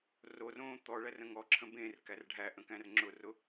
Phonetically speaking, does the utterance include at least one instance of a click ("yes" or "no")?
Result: yes